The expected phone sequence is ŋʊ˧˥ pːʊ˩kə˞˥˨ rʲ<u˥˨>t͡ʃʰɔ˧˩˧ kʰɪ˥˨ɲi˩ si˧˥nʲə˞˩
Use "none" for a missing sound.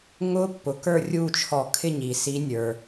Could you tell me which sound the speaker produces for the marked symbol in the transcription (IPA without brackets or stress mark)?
u˥˨